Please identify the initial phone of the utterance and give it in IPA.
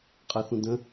qʼ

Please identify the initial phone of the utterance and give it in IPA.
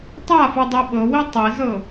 tˤ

